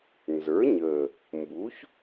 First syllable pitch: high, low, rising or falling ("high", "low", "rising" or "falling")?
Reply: rising